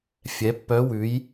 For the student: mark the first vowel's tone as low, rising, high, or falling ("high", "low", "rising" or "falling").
rising